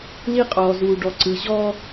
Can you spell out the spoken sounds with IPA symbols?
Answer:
li˦qʼɔː˨ zuː˨ ɖɔ˨ǀɯ˨ ʑɔː˦

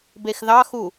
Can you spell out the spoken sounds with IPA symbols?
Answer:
bexðɑxu

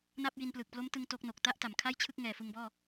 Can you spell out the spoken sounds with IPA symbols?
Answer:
na˥˩p̚ji˧nplɯ˨˩k̚ plo˦˥mtɯ˧ŋ to˦˥k̚no˨˩k̚ ta˥˩ʔta˩˦mkʰa˥˩jt͡ɕʰɯ˥˩k̚ ŋɛː˨˩fɯ˧ŋbɔː˥˩

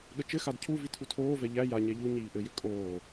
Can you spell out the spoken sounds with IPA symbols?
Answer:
ɠət͡ʃɘxad cʰuvi tʰutʰoːvɛ ʎæ jaɲɛ ʎu ɲiːʔɘjʏ kʼoː

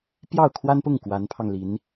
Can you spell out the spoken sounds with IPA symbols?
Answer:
pjɑ˥˩ʊ̯kʰwa˥npʊ˥˩ŋ kwa˧˥npʰɑ˧ŋli˧˥n

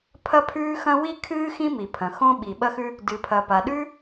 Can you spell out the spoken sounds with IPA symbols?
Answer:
pʰɐ˥pʰʉː˥xɐ̃˥ wi˥kʰɨː˥ xĩ˥mi˩pʰɐ̃˩ xõ˥ɓi˩ɓɐ˥xʉ˥ | dɨ˩pʰɐ˩pa˩ ɗʉ˥

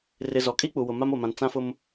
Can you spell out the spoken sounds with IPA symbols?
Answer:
rɪ˨ zɔ˨kʼi˦k͡pu˨wʊ˨ ma˦mo˨mã˨n t͡sã˦fʊ˦m

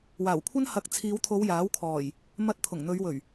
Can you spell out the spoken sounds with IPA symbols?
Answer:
waː˨˩wkʷʰɐ˥n hɐ˨k̚ t͡sʰiː˨˧wt̪ʰo˨˧w jaː˨˥wkʰɔː˨˩j | mɐ˧t̚ t̪ʰʊ˨˩ŋn̪ɵ˨˧ɥwɵ˨˩ɥ

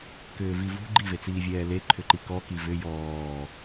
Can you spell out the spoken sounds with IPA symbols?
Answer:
kʏːvivṳ ɡ͡ǃivet͡siːvʲɛː le ǃʰʏǃikɔ kivʏ jɔː

